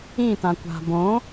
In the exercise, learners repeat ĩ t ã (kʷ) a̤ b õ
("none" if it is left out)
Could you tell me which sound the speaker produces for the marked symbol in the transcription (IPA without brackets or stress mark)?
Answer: kʷ